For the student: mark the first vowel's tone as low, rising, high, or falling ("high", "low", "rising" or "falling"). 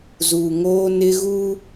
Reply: low